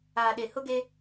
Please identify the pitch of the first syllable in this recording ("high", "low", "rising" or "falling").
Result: low